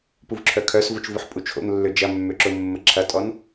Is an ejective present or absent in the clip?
present